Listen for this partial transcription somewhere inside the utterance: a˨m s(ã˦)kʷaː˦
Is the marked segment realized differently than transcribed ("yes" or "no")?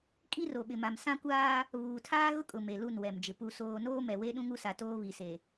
no